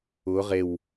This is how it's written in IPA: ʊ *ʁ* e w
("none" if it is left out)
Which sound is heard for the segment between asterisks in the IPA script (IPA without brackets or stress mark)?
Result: ʁ